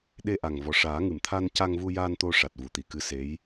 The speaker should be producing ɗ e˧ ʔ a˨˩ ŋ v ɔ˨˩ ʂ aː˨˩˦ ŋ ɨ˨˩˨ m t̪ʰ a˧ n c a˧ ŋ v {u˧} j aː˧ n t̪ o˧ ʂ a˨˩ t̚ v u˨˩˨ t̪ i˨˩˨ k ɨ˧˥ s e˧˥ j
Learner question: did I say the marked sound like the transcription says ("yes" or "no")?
yes